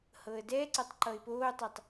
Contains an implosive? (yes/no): no